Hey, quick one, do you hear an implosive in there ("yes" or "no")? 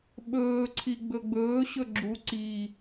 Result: yes